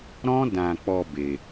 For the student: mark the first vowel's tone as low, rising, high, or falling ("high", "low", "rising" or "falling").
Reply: high